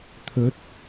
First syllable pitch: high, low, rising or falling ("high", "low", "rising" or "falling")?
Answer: rising